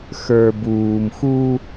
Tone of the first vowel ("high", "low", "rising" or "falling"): low